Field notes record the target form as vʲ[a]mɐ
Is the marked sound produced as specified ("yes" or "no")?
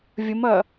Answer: no